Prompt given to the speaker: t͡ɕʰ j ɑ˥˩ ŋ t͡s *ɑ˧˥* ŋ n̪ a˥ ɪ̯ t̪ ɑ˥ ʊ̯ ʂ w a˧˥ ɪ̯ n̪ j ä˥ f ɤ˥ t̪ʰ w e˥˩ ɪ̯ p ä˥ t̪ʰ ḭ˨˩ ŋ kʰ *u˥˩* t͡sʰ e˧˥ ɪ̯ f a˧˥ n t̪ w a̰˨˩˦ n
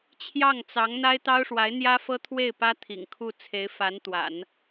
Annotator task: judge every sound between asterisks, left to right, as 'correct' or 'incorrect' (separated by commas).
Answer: correct, correct